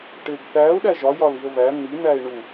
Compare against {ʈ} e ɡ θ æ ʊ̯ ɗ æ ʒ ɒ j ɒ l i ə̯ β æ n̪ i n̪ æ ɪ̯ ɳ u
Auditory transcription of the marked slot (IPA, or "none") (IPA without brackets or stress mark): ʈ